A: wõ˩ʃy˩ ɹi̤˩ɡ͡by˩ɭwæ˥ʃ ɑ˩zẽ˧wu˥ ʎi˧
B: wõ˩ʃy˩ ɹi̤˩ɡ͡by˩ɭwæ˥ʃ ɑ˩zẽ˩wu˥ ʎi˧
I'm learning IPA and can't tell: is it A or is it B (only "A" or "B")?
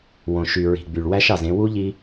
A